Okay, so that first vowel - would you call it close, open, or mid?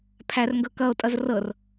open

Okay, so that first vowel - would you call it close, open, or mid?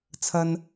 open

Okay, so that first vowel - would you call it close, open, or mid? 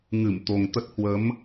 close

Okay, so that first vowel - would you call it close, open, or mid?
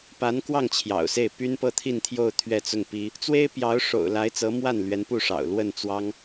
open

